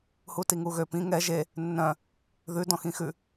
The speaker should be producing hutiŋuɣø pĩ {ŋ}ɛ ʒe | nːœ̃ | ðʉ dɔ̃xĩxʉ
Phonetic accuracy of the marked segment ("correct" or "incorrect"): correct